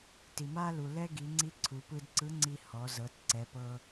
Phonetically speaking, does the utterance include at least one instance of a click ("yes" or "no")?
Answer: yes